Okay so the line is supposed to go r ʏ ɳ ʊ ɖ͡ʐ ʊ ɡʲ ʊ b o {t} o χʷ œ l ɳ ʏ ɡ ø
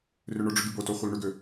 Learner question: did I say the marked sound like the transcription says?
yes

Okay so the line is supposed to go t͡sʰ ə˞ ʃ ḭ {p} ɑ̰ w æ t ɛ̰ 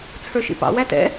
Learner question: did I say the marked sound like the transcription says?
yes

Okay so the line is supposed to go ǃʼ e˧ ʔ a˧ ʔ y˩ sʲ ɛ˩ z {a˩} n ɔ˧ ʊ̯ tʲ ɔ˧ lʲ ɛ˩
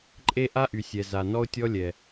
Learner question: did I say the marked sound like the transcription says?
yes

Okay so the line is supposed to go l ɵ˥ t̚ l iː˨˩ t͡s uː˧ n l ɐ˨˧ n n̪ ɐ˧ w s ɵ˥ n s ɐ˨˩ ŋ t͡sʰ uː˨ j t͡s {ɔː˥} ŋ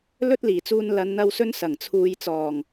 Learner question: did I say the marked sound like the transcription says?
no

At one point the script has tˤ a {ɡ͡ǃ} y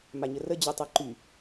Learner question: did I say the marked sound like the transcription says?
no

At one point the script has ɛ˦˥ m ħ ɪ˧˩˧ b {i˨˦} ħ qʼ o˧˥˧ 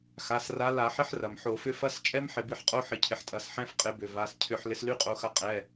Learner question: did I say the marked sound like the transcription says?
yes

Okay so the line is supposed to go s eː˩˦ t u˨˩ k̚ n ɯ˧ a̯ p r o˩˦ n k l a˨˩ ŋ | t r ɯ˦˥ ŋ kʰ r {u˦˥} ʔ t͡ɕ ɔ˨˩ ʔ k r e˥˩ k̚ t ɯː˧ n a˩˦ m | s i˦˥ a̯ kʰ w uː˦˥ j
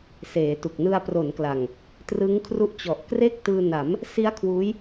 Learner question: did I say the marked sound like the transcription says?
yes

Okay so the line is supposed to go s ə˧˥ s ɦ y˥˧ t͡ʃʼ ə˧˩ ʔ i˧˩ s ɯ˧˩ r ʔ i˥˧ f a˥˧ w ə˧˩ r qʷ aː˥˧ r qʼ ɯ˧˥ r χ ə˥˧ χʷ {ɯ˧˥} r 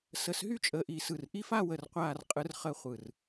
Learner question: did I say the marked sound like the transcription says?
no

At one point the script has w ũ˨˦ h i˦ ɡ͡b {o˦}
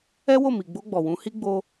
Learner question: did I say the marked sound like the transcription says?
yes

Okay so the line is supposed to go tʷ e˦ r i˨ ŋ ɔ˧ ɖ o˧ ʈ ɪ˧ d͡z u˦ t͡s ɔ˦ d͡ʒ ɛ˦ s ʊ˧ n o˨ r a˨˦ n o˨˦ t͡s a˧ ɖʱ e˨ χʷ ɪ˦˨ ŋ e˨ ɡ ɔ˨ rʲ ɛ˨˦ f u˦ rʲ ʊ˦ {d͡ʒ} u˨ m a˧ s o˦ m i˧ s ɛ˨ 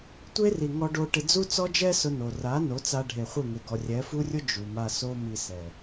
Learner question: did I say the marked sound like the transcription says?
yes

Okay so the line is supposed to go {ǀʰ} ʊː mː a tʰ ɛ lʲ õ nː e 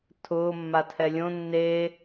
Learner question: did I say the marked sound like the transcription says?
no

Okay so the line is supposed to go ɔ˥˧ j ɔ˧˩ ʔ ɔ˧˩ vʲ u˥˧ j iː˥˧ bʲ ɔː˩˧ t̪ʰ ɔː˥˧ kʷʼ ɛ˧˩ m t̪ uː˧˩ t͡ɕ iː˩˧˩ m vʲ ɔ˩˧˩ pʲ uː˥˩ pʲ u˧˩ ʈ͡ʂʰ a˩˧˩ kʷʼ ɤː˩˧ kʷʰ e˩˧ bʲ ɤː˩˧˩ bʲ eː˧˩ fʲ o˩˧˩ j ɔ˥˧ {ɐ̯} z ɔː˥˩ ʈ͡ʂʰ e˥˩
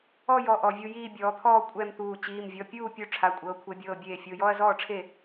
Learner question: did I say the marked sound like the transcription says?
yes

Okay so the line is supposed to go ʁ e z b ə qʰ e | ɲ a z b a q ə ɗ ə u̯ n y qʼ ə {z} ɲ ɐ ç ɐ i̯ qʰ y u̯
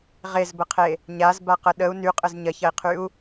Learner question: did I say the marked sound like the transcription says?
yes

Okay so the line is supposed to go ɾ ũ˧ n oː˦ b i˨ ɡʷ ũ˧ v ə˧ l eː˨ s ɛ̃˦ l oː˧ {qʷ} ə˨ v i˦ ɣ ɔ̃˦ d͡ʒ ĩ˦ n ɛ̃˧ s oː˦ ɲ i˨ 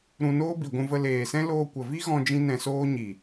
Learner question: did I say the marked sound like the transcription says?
no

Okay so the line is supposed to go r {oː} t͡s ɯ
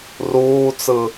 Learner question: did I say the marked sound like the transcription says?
no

